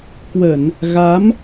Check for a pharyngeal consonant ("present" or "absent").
absent